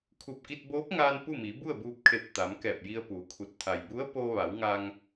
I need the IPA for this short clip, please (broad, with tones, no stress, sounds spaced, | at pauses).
kʰ u˧˩ p̚ k i˧ t̚ b oː˧˥ p̚ ŋ aː˧ n p u˥˨ m i˩˧ b u˥˨ ə̯ b uː˧ p̚ kʰ e˧˩ p̚ t̪ a˩˧ m k ɛː˧˩ p̚ j i˧ ə̯ p uː˩˧ kʰ u˧˩ t̚ t̪ʰ a˩ j b u˧˥ ə̯ p oː˧ ʋ a˩˧ w ŋ a˧ ŋ